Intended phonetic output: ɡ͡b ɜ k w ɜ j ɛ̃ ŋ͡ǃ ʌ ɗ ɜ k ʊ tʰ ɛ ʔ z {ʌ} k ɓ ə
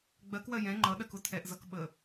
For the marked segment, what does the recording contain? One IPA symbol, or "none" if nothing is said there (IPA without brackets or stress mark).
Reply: ʌ